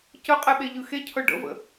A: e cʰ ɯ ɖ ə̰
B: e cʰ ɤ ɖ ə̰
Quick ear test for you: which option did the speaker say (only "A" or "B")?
B